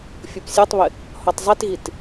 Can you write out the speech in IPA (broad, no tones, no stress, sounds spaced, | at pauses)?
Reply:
fʲ u p sʲ o tˤ β ɪ | h ɔ tˤ zˤ e t ɣ i t